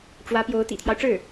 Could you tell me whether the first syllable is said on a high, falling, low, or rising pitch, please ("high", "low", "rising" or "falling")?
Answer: rising